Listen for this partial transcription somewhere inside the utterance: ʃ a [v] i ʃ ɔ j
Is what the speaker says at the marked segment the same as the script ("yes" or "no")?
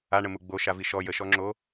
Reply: yes